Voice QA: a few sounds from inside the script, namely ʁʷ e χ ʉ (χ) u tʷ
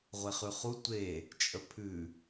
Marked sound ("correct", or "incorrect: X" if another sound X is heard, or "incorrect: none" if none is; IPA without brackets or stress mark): correct